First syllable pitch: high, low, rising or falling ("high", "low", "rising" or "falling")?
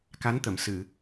rising